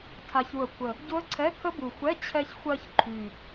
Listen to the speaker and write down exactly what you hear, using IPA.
tʰ a˨˩ ç u˨˩ ə̯ kʷʰ ə˨˩ | ɟ ʊ˦˥ ə̯ ǀʰ ɛ˧˥˧ kʰ ə˦˥ b u˨˩ xʷ ɛ˧˥˧ t͡ɕʰ ɛ˧ ç xʷ ɜ˧ ç ǃʰ y˨˩

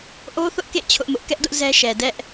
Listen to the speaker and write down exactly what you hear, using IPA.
ʔ o˦ θ ʊ˦ ʔ k ḛ˦˨ t͡ɕʰ ʊ˦ ʔ m ʊ˦ ʔ k ɛ˦ ʔ d ʊ˦ ʔ z ɛ˦ ʃ ɛ˨ d ɛ˦ ʔ

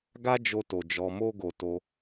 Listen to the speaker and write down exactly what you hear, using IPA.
ɡ a˦ d͡ʒ o˧ t o˨ d͡ʒ ɔ˧ m o˦ ɡ o˧ t o˧

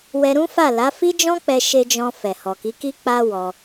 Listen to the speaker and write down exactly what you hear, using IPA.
w ɛ˧ ɾ ũ˦ f a˦˨ l a˨˦ f i˦ d͡ʒ ɔ̃˦ k͡p ɛ˧ ʃ e˧ d͡ʒ ɔ̃˧ f ɛ˨ h ɔ˨ k i˨˦ k i˦ k͡p a˦ w ɔ˧

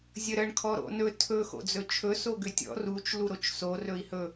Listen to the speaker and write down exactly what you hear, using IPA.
zʲ ə ɾ ə ɳ kʰ ɔ ɾ o̰ n ɵ tʰ ɵ x o̰ d͡z ɵ t͡ʃʰ ɵ s o ɡ ʏ tʲ ɔ̰ r u t͡ʃ l u ɾ o t͡ʃ s o r ɵ i̯ h ɵ

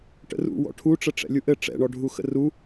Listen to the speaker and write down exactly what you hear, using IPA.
ʈ ə̰ r ṵ w ɔ̰ ʈʰ u ʈ͡ʂ ə ʈ͡ʂ ɛ̰ lʲ u ʔ ɘ ʈ͡ʂ ɛ̰ ɳ ɔ ɖʱ u x ə̰ r u

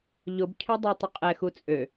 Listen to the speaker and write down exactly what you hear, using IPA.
ʎ ʊ b cʰ œ dˤ œ tˤ ʊ qʼ ɛ x u t͡sʼ ø

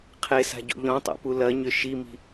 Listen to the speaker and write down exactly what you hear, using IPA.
qʰ e s a̤ ɟ o̰ ʎ ɔ̃ tˤ a̰ p u l ɐ ɲ ʏ ʃ i m i̤

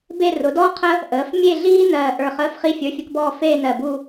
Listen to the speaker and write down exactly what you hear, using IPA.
b e˥˧ r ʊ˩˥ d ɔː˥ qʰ ə˥ | ʔ əː˩˥ f mʲ e˥˧ ɮ iː˥ n ɜː˧˩ ʔ ə˞˧˩ χ əː˧˥˧ f χ i˥ fʲ ə˞˧˥˧ fʲ ə˥ k b ɔː˥˧ f eː˥˧ n ɜ˧˩ b u˥˧

